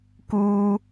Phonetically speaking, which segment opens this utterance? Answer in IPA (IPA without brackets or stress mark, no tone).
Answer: k